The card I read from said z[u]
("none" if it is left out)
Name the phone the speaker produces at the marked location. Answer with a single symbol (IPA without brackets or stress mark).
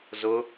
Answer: ʊ